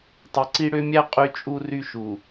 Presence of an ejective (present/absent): present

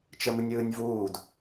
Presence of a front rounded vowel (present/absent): absent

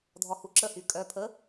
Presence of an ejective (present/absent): present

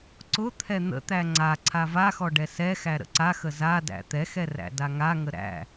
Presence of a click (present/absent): present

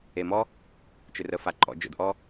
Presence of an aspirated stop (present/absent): absent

